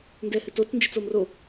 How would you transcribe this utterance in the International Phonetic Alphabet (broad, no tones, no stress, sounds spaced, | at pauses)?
n d ɛ h ɨ t o t͡s n d͡ʒ ɨ t͡s o m r o